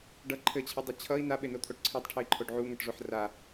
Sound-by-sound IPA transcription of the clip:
ɖʌ ǃʰɘt͡ɕʰʌdˤɘ t͡ɕʰʌi̯ naɓenot̪ʰoʈ ǀʰetˤʈʰɘi̯ǃʰoɖ ʕuŋʌʈʐoħ ra

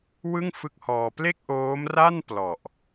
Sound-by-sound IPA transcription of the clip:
wɯ˥˩ŋfɯ˦˥k̚hɔː˧ ple˥˩k̚ʔoː˦˥mra˥˩n plɔ˨˩ʔ

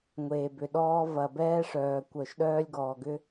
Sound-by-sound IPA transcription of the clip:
ŋʷeː˨bʏ˨ɗɔː˦ vɐ˨bɛː˦ ʂœː˨ kʷœ˨ʃɗœː˦lʲɡɔː˨ɡʏ˦

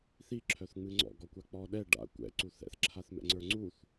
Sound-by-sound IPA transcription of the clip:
θi ǁʰœθŋ͡mɨŋ͡ǀɔ̰ ɡɔkʷak͡pɔɗɛ ɖa̰ kʷɛ̰ ǀuθɛ̰θ ǁʰaθmɛ̰ŋ͡ǀə˞ŋ͡ǀuθ

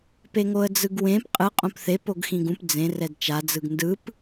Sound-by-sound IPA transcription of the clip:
peŋoə̯d͡zɯɡwẽp qʼɯ qʼõpθe poɡxĩɡũp d͡zẽ rɛdt͡ʃa d͡zɯɡndɯp

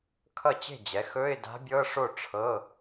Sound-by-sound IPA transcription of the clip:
kʰʌ˥˩t͡ɕe̤˥˩d͡ʑɛ˩˥xɵ˧˥˧ɪ̯ da̤˧˥bʲɤ˧˥˧ʂo˥˩ ʈ͡ʂʰɤ˧˥˧

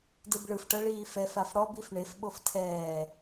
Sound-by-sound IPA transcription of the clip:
dɯbɭɯfʈɤ ɭiːfɛf afɽɔbif ɳefɓof tʰɛː

